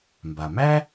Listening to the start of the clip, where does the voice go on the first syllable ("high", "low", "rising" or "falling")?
low